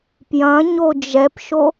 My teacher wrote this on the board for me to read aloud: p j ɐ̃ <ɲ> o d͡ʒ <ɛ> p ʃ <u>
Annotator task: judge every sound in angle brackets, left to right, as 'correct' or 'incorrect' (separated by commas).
correct, correct, incorrect